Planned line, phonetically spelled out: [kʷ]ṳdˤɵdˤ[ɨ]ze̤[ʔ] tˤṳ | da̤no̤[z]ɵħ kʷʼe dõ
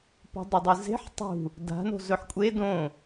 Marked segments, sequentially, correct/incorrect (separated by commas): incorrect, correct, incorrect, correct